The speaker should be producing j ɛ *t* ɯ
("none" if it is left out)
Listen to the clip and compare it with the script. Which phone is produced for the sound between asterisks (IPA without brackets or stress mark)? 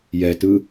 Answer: t